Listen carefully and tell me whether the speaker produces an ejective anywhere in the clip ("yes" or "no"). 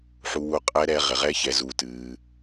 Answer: yes